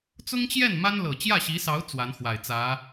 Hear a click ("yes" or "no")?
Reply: no